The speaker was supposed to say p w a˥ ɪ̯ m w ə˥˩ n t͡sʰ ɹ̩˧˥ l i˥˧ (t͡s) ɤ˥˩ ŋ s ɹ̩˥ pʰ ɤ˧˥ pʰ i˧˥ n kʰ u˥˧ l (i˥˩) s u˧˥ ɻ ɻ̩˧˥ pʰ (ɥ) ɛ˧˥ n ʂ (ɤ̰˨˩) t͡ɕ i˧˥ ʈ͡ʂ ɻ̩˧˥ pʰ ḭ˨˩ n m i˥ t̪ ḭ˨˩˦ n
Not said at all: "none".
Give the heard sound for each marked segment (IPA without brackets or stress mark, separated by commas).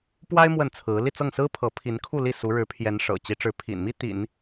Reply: t͡s, i˥˩, j, ɤ̰˨˩